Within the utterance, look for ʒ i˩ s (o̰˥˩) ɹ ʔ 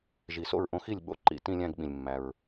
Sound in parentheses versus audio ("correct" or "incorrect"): correct